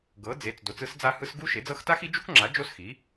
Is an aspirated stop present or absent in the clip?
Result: absent